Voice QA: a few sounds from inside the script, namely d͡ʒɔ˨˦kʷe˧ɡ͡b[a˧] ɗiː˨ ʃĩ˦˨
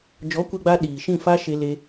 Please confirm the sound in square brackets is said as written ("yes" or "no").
yes